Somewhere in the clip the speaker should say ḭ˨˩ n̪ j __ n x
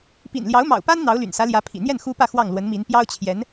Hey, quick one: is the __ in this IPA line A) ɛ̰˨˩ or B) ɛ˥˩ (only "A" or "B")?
B